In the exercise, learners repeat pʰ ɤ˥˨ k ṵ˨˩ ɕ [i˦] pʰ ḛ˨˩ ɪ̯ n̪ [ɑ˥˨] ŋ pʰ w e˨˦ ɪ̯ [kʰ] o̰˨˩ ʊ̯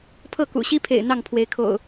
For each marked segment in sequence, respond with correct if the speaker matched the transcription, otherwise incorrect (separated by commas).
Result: correct, correct, correct